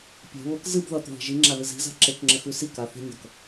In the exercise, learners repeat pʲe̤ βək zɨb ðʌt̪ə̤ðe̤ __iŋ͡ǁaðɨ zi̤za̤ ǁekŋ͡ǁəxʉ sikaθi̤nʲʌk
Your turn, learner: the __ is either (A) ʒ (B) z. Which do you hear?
A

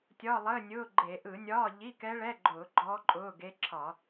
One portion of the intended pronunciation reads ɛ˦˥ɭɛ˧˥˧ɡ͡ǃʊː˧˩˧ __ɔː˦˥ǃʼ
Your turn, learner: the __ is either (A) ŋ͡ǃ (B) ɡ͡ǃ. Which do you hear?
B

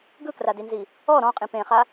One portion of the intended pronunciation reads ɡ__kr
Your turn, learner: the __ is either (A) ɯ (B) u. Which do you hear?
A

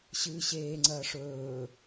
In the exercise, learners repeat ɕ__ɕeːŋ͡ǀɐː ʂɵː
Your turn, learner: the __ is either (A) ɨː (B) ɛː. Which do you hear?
A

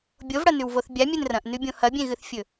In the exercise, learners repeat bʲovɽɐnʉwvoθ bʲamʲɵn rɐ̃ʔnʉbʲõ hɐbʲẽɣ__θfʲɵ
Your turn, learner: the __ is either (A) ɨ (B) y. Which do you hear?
A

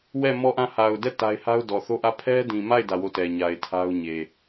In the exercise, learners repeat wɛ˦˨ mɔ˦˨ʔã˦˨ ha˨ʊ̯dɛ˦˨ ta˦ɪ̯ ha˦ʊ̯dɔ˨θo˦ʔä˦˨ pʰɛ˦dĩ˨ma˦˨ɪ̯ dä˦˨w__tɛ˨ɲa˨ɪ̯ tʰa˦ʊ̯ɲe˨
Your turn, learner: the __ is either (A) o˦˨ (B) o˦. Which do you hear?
A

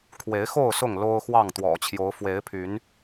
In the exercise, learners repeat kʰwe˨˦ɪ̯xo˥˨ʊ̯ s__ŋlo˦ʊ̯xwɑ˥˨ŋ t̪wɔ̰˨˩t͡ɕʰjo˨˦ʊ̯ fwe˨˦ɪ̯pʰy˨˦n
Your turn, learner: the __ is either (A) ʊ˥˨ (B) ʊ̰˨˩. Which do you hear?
A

